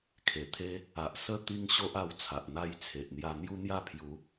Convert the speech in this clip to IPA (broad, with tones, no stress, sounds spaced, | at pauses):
kʰ e˨˩ t̪ʰ e˦ | a˨ ʔ s ə˥˧ t̪ i˦ ŋ ɕ o˦ ʔ a˧ w t͡sʰ a˨ ʔ n̪ a˥˧ j t͡sʰ e˨ ʔ n̪ j a˧ n̪ j u˦ n̪ j a˥˧ pʰ j u˨˦